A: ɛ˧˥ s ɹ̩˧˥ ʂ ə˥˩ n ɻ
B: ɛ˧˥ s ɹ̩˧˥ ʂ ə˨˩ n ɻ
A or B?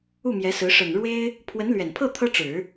B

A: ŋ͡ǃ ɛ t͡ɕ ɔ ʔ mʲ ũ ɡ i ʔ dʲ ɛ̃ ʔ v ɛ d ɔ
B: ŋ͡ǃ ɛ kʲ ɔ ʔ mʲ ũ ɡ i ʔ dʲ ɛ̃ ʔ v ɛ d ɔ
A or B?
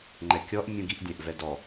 B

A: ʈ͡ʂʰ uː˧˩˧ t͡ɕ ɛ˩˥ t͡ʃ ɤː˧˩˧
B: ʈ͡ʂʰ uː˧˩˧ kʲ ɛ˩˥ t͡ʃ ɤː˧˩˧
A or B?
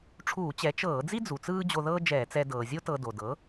A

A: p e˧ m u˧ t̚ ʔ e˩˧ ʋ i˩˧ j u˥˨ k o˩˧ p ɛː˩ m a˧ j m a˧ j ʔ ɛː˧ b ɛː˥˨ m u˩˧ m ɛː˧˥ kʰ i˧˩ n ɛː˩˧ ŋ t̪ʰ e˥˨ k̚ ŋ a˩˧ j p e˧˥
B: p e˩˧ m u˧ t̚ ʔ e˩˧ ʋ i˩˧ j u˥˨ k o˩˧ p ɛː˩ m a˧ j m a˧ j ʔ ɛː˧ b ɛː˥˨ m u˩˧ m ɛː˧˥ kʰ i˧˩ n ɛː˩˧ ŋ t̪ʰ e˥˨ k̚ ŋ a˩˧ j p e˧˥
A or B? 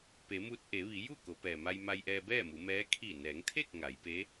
B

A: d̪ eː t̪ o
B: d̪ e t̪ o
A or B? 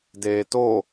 A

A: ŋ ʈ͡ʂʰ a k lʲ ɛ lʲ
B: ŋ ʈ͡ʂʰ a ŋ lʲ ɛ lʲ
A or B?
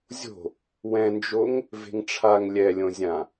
B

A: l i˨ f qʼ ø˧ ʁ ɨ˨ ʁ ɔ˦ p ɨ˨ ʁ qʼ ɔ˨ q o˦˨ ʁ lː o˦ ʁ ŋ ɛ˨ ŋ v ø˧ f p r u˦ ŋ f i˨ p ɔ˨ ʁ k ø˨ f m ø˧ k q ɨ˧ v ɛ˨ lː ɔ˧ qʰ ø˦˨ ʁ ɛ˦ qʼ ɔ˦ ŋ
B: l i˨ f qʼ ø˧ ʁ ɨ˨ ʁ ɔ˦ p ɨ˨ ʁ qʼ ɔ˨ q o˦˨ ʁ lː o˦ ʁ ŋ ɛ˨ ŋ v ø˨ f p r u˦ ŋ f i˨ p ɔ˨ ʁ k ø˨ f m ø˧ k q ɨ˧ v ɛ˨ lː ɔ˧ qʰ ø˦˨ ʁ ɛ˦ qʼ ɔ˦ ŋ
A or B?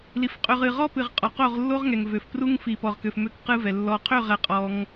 B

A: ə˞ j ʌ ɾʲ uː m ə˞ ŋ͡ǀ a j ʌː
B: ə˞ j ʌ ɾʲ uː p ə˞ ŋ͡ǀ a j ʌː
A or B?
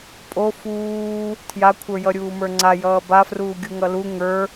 A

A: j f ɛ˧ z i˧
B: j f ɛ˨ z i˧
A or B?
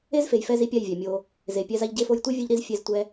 A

